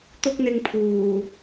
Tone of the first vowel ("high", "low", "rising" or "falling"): high